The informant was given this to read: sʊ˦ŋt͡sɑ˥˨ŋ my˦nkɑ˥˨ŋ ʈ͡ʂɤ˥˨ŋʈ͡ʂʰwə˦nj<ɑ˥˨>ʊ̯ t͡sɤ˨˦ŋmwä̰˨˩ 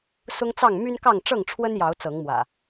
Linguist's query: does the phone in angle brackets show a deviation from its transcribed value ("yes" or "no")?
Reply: yes